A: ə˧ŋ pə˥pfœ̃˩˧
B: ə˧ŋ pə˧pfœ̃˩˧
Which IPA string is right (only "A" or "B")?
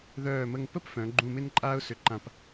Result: A